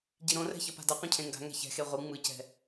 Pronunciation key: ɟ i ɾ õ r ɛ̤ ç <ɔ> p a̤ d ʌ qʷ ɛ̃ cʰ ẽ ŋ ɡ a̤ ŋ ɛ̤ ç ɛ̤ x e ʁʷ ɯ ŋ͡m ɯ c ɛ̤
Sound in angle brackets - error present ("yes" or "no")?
yes